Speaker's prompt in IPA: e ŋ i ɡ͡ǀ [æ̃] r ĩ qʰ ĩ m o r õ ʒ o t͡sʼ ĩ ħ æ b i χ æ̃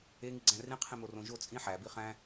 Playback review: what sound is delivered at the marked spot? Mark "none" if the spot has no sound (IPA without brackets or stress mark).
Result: æ̃